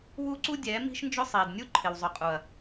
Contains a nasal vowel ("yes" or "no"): no